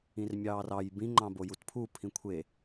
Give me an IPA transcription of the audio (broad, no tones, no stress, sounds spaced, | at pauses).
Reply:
ĩ r mʲ ɑː r ɑ j b ĩ ŋ͡ǃ ɑ̃ b o j u t pʰ u pʰ ĩ kʷʰ e